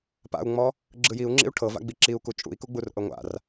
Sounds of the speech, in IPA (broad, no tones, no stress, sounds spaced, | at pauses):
p a̰ u̯ ŋ͡m ɔ | ɡ͡ǁ ɯ j i u̯ ŋ͡ǁ ḭ u̯ ʈʰ ɤ v a̰ ɡ͡b i ǁ i u̯ k u t͡ʃʼ ṵ i̯ k u ɡ͡b u r ʔ ɤ ŋʷ a̰ r